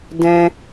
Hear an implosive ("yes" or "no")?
no